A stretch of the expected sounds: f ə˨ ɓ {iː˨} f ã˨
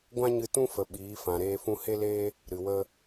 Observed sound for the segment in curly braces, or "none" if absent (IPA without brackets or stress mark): iː˨˦